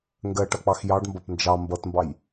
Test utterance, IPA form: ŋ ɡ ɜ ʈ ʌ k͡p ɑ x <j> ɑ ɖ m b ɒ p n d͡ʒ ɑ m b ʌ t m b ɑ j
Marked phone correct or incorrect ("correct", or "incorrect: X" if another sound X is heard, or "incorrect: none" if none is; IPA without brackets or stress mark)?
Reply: correct